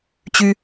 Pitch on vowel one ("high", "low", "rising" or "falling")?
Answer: high